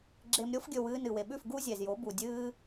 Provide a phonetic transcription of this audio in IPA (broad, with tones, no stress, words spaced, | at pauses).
ɡ͡ǁe˧mɾʲo˦fɡʲɵ˧w ɨː˧nɨ˨we˨ɓʉ˦˨f ɡu˦zʲe˨zjo˨˦ bu˨dʲɨː˦